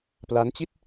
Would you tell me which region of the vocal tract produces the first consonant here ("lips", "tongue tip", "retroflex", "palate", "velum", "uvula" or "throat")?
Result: lips